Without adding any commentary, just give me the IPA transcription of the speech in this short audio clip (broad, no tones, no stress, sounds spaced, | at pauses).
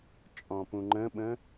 t͡ʃʼ ɔ̃ p ũ ŋ͡ǃ ə̃ ɓ ə̃